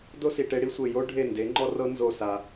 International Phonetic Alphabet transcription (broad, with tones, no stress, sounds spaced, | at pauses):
d o˦ s i˨ ʈ e˧ ɽ i˦ sʷ e˨ j o˦ ɖʱ e˦˨ n d e˨˦ ŋ͡ǃ ɔ˦ r ɤ˦ n z o˦˨ s a˧